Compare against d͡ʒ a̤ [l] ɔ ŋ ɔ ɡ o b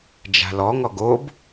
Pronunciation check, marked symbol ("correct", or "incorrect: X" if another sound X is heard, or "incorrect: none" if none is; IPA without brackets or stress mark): correct